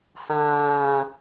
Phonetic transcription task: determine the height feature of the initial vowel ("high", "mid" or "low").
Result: low